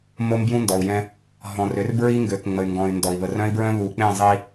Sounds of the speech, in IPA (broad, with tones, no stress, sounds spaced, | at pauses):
m o˦ m b j ũ˦ n d ɔ˨ u̯ j ɛ̃˦ | ɦ ɔ̃˨ r ø˨˦ r b ɹ i˦ ŋ ɡ ø˨ k ŋ͡m ə˨ y̯ ŋ ɡ ɔ̃˨ y̯ n d ɔ˨ i̯ β ə˨ r œ̃˦ i̯ b ɹ œ̃˦ β u˨ k͡p ẽ˦˨ zˤ i˦